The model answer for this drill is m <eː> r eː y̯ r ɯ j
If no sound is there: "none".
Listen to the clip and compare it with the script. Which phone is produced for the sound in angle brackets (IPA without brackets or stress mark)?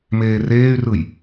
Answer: eː